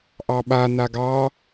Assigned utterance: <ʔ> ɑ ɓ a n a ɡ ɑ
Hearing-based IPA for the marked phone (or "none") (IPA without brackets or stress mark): ʔ